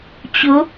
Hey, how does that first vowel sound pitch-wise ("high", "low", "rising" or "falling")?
rising